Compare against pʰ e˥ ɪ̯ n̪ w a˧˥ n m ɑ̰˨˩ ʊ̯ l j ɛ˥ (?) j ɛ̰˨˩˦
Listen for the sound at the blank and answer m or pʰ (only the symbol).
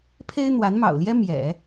m